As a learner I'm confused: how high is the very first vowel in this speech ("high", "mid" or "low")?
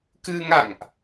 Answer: high